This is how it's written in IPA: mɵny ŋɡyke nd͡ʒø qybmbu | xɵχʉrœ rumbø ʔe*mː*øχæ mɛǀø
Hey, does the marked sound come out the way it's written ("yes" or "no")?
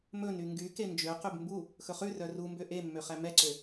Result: yes